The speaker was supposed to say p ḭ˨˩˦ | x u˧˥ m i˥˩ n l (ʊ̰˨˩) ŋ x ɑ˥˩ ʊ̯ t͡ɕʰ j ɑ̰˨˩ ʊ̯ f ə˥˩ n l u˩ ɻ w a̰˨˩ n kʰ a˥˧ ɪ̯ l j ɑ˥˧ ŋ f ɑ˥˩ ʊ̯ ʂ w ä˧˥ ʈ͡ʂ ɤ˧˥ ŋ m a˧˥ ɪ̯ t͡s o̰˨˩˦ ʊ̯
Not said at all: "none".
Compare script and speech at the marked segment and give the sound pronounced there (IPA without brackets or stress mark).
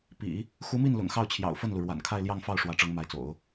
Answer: ʊ̰˨˩